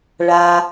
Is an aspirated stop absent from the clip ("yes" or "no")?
yes